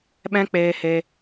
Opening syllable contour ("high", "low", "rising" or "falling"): high